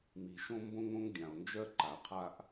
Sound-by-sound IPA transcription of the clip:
m i˩ ʃ õ˧ m b õ˧ ŋ õ˧ ŋ dʲ ã˩ o̯ n d͡ʒ ɜ˧ ǃ a˩ qʰ a˧ ʔ

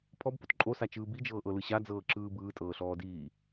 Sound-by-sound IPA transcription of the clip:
pʰ ɔ b p o t ǃʼ o s a t͡ʃ ɯː b i d͡ʒ ɤː ʔ ɤ l ɯ ɕ a d͡z ɤː ǁ ɯː b ɯː tʼ ɤː ɬ ɔː d iː

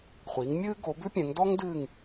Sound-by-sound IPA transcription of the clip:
χʷ iː˩˥ ŋ mʲ ɨː˥ ɡ o˩˥ b ʉ˥ pʲ ɛ̃˩˥ ŋ d ɔ˥ ŋ d ɨː˦˨ ŋ

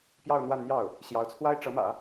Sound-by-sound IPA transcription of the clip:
p j ɑ˥˧ ʊ̯ n̪ w a˥˧ n n̪ j ɑ˥˩ ʊ̯ | ɕ j ɑ˧˥ ʊ̯ t͡sʰ w a˥ ɪ̯ ʈ͡ʂ ɤ˧˥ m ä̰˨˩˦

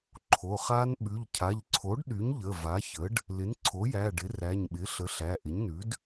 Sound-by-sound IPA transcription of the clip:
ǃʰ o˩˧˩ χ a˦˥ n ɓ ʉ˩˧˩ ʎ cʰ a˩˧˩ ʎ ǀʰ o˩˥ ɖ ɗ y˩˥ ɲ ʎ ə˩˧˩ v a˩˥ ç ə˩˥ ɖ | l ɪ˩˥ n ǀʰ o˩˥ j æ˩˧˩ ɖ ɪ˩˥ r æ˩˧˩ ɲ ɓ ɪ˩˥ ɬ ə˩˥ ɬ æ˩˧˩ ʔ ɪ˩˥ ɲ n ʉ˩˥ d

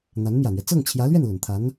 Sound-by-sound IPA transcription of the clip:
n̪ a˧˥ n m j ä˨˩ n̪ ɥ ɛ˦ t͡s ɤ˥˩ ŋ t͡ɕʰ j ä˧˥ l ɥ ɛ˥˩ n l ə˨˩ n t̪ʰ a˧˥ n

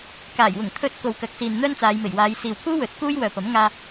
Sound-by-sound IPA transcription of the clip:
k aː˨˩ j w ʊ˨˩ ŋ t̪ʰ ɵ˨˥ t̚ k o˨ w k ɐ˨˥ k̚ s iː˨ n n̪ œː˥ n t͡s aː˨˧ j m e˨˩ j w aː˨˧ j s iː˨ w pʰ uː˥ w ɵ˨˥ t̚ k uː˥ j w œː˨ p ɐ˨˥ m ŋ aː˧

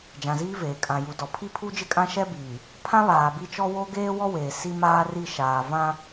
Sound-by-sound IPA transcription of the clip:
d͡ʒ ã˨ z iː˦ v eː˨ kʼ ã˨ j u˨ d ɔ˨ pʰ i˦ pʰ u˦ d͡ʒ ɪ˦ kʼ ã˦ ʃ ɛ˦ b iː˨ | pʰ ã˦ β aː˨ b i˦ t͡ʃ ɔ˦ w o˦ ɡ eː˦ w ɔ˦ w eː˨ s i˦ m aː˦ r i˦˨ ʃ aː˨ v ã˦

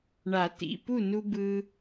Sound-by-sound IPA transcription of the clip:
ɳ a˨˩˦ t ḭ˩˧˩ p u˥˨ n u˧ b ɯ˧

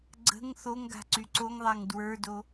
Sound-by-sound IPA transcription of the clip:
ɡ͡ǀ ə̤ ŋ θ o ŋ ɡ a̤ ǀ y ǀ o ŋ ðˤ a ŋ d w ə˞ d o

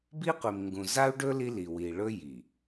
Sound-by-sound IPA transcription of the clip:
b i˦ qʷ i˨ m ŋ ɡ ũ˨ z a˦ u̯ ɖ ɵ˦ l i˦ l i˨ w i˨ ɭ ɵ˦ j i˨

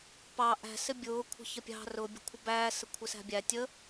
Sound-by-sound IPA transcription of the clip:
p ɑ ʔ æ̤ s ɪ bʲ ʊː kʷʰ ə̤ ç ə pʲ ɑ̤ r ʊ bʲ ə̤ kʷʰ ə b æː s ə kʷʰ ɪ s æ̤ bʲ æ tʲ ə

